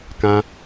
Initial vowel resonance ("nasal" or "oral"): nasal